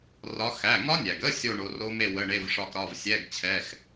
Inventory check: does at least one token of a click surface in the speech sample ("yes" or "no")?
no